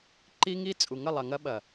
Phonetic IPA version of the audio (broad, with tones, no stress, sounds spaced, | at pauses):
ǃ i˦ ŋ i˦ t͡sʼ u˨ ŋ ə˦˨ lˠ ɐ˨ ŋ ɐ˦ ɓ ɐ˨